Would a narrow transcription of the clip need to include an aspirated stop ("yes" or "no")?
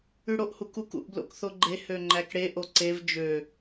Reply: no